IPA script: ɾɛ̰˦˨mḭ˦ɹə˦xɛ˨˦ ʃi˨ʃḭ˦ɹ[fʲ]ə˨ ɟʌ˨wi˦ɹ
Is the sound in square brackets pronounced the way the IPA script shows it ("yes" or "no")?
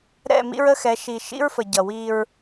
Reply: no